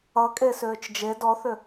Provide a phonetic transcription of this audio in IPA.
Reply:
ʌkʼe sʏːt͡ʃd͡ʒe dɔθʏ

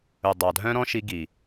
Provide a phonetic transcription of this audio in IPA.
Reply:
ɵ˨ dˤɑ˨dʱœ̃˦ ɾɔ̃˦ʃi˧ ɡi˨

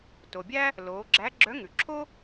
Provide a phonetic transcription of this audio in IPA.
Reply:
to˩bʲæ˥ | loː˩˧ɡ͡ǁæ˧˥ ɡ͡ǁœ˧˥ ŋʉ˩ǁʰo˥

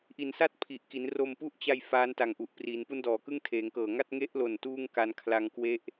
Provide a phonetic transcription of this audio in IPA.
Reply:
ʔi˨˩nsa˥˩t̚ pʰi˨˩ʔki˩˦nro˧m pu˦˥ʔt͡ɕa˧j faː˦˥nta˨˩ŋʔu˨˩ʔ pri˩˦n pu˦˥ndɔː˩˦kɯ˥˩ŋ tʰeː˩˦ŋkɤː˨˩ ŋa˥˩t̚ ŋe˦˥ʔlo˨˩n tuː˥˩ŋka˧nkʰla˧ŋ kwe˦˥ʔ

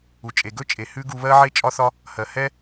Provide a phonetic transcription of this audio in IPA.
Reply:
u˩t͡ʃʼe˩ ɡɵ˥t͡ʃʼe˩ hʉ˥ɡu˧βɜ˥ʕe˥ t͡ʃʼɒ˥θɒ˥ | hɜ˩hɛ˥

